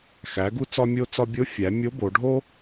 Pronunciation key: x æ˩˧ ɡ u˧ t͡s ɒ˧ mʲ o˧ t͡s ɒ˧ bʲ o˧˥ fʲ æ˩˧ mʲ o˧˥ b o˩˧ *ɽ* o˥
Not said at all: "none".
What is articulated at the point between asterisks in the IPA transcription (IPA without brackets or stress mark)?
ɖʱ